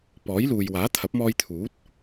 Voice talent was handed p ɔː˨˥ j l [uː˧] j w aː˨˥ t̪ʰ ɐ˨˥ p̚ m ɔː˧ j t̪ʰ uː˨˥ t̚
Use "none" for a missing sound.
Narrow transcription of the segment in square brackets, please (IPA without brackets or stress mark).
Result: uː˨